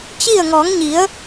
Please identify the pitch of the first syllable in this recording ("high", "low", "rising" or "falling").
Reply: falling